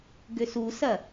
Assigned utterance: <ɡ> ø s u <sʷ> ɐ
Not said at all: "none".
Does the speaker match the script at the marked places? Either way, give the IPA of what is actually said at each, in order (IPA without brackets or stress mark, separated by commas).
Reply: ɡ, s